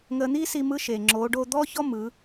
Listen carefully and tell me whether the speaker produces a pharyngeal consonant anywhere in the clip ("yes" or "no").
no